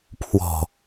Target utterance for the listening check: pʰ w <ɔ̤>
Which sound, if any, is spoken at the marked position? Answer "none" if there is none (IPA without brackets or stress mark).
ɔ̤